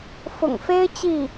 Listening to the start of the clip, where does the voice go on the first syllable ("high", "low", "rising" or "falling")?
low